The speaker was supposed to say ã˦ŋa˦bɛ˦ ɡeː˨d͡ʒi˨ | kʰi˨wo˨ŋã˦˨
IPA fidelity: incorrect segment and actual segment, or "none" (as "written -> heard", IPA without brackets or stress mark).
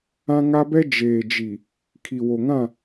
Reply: ɡ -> d͡ʒ